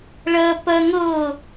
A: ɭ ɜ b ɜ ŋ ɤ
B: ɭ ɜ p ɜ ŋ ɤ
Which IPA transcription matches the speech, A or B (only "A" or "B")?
B